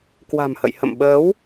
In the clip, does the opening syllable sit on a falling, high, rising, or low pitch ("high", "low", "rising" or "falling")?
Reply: low